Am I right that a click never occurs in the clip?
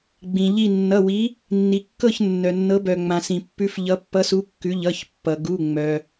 yes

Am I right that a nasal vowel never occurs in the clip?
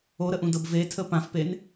no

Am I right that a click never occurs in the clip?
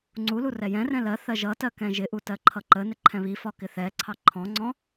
no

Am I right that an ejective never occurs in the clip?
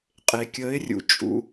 no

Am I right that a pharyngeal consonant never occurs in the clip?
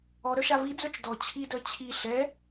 yes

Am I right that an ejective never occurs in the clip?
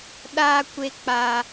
yes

